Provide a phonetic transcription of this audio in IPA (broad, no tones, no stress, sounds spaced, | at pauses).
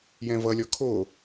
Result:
j ɛ̃ v ʌ lʲ ɔ kʰ o